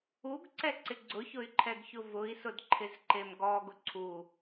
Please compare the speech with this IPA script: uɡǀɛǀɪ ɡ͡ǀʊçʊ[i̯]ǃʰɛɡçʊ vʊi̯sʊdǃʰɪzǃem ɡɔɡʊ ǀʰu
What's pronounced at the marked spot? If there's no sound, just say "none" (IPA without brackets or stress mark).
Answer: y̯